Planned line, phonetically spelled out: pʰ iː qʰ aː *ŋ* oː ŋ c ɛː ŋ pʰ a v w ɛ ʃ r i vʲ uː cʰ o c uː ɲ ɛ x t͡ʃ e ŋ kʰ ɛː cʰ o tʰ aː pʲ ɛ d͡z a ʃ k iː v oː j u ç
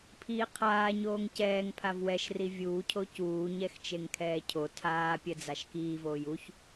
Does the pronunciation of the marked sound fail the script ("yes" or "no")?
yes